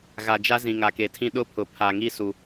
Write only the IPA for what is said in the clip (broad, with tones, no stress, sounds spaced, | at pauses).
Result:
ɣ a˨ d͡ʒ a˦ z ĩ˨ ŋ a˨ k e˨ tʰ ĩ˦ ɗ ʊ˦ pʰ ʊ˨ pʰ a˨ ŋ i˦ s u˨